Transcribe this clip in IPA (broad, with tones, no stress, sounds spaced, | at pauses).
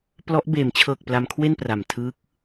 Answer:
p l ɔ˦˥ ʔ b eː˩˦ m t͡ɕʰ ɤː˨˩ k̚ p l a˧ m kʰ w e˥˩ n p r a˨˩ m tʰ ɯː˦˥ k̚